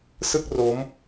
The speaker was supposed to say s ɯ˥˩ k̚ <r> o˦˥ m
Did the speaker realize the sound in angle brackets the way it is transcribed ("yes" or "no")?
yes